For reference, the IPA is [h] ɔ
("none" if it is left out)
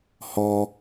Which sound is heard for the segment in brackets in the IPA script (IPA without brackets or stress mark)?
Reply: h